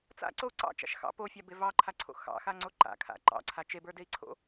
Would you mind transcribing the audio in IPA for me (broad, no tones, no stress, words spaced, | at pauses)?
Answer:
t͡sa̰ǀou̯ ǀɑ̰t͡ʃa̰ʃ xɑ̰ pofʲabe vɑǃʰaǀʰo̰ xɑ̰xaŋ͡ǀo ǃa̰kʰa̰ ǃɑ̰ǀʰa t͡ʃebə˞dei̯ǀʰo̰